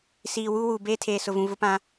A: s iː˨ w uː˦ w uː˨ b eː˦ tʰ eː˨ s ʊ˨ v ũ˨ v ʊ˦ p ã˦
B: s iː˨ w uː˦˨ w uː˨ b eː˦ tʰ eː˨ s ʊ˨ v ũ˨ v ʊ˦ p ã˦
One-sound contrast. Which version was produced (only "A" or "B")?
A